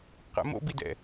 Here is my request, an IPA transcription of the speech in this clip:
qɛ̰mo̰bidɛ̰

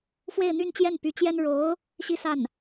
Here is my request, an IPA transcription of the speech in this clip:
fwe˥˧ɪ̯n̪y˥˧nt͡ɕjɛ˥˩n py˧˥t͡ɕjɛ˥n ɻo˧˥ʊ̯ | ɕi˥sa˥˩n

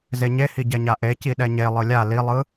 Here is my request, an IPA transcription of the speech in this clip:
zeɲehi ɟɛɲaʔe ciɗɛɲe lˠɯlʲa lilˠɯ

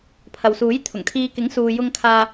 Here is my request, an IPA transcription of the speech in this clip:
pʰɐ˨wsuː˨˥jt̪ʰʊ˨˩ŋt̪ʰiː˧ kɪ˨˥ŋsuː˨jʊ˧ŋ kʰaː˧

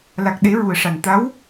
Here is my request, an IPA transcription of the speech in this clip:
la˨˩k̚ɗe˨˩˦ ɹu˨˩ə̯ʂa˨˩n t̪a˧˥w

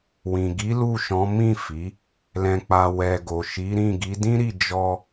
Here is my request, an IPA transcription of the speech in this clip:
wĩ˨ɡi˨˦ lu˦˨ʃɔ̃˨˦ mĩ˦˨ fi˨˦ | lɛ̃˨k͡pa˨ wɛ˨ ɡo˨ʃi˨˦ɾĩ˦˨ ɡi˨˦dĩ˦ɾi˦˨ d͡ʒɔ˧

